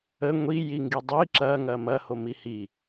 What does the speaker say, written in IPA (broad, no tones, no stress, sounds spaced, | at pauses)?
ə ŋʷ i j i ŋ ɡ i dˤ i ǁ ɐ ŋ ɐ m ɐ h o m i h i